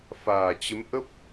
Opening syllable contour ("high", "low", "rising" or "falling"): low